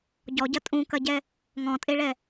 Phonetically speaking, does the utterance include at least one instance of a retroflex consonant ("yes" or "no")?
yes